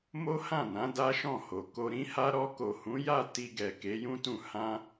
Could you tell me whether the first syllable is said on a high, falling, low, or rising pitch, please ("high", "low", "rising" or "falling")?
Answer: high